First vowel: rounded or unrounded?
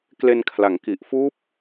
unrounded